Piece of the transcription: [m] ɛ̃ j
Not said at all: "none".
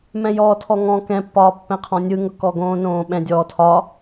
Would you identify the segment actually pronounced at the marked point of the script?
m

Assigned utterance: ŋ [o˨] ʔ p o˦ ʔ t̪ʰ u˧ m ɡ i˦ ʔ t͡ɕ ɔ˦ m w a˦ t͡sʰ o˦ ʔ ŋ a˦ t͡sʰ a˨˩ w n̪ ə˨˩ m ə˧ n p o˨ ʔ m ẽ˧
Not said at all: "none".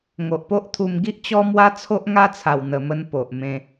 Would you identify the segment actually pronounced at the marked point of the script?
o˨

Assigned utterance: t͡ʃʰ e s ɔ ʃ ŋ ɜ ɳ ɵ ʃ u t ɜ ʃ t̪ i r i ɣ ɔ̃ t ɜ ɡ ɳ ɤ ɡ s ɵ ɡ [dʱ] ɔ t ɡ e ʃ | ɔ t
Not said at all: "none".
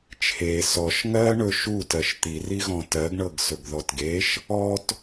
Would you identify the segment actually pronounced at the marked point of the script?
ð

